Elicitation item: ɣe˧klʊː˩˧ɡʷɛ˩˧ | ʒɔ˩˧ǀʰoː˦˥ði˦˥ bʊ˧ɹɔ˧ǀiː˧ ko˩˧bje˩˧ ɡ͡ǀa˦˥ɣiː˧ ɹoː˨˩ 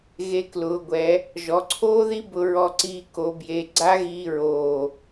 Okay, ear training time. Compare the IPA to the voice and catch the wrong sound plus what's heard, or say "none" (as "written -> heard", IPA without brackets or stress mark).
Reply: none